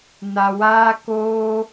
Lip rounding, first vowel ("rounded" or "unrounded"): unrounded